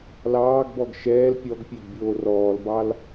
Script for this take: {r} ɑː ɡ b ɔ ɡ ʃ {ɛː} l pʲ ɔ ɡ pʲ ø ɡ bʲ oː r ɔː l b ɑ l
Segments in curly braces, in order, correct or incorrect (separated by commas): incorrect, correct